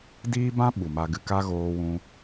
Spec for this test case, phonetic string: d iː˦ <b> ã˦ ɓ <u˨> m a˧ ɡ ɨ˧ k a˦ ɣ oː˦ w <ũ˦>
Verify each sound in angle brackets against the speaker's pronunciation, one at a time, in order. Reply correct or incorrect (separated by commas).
correct, correct, correct